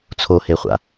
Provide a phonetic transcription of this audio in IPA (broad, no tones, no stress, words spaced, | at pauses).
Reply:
t͡sʰoheχʷa̰